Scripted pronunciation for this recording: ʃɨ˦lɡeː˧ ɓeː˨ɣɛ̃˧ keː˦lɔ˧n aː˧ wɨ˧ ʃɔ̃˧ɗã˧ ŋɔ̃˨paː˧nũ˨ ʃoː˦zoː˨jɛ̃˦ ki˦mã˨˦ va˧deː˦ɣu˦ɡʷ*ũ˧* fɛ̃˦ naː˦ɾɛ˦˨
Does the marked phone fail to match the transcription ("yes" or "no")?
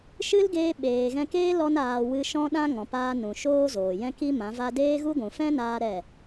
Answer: yes